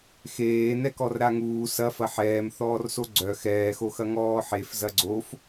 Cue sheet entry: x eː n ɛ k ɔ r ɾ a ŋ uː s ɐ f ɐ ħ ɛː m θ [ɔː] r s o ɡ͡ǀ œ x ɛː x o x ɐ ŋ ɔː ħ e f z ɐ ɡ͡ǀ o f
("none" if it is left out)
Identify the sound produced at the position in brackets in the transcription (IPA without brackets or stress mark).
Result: ɔː